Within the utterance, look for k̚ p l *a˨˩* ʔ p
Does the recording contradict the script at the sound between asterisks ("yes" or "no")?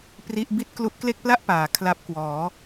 yes